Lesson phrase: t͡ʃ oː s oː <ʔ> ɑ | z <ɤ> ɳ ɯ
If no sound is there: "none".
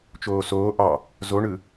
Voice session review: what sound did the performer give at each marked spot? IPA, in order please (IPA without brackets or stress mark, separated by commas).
ʔ, o